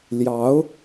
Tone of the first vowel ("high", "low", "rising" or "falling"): rising